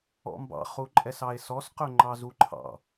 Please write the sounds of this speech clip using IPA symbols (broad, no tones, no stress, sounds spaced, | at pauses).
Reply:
ɔ̰ m b ɑ̰ χ u ǃʼ ɛ s ɑ e̯ s ɔ s q ɵ ŋ͡ǃ ɑ z u ǃʰ ɑ̰